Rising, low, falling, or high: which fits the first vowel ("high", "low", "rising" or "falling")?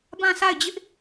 falling